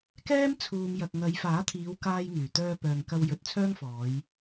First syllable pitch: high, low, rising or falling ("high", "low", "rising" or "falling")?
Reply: high